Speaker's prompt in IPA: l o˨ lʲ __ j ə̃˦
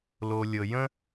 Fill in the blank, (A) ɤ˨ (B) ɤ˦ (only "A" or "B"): A